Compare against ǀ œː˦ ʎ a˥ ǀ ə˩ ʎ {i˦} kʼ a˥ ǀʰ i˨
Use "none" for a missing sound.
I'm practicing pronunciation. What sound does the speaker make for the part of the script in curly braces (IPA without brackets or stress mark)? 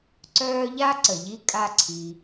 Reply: i˦